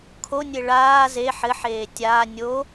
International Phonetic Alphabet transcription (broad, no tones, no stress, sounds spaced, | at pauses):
kʰ o nʲ e ɭ aː z e ħ ɘ ħ eː tʲ aː nʲ o